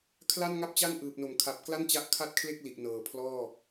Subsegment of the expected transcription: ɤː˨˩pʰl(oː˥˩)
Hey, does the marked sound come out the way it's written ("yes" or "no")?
no